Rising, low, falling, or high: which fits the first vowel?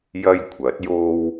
high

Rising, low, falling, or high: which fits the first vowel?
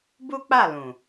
high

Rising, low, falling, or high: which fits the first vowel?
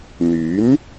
rising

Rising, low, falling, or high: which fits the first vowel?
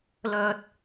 low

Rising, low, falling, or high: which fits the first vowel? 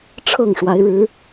falling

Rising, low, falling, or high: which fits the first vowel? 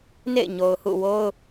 falling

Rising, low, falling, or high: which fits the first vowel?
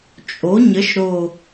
rising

